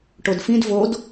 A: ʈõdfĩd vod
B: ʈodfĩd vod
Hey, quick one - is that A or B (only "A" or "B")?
B